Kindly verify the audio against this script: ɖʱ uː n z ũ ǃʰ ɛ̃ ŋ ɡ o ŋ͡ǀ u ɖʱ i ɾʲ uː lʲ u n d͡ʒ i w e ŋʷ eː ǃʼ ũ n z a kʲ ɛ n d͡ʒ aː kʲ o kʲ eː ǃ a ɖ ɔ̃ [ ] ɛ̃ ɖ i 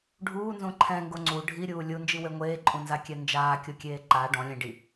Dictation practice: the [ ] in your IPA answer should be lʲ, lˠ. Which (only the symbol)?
lʲ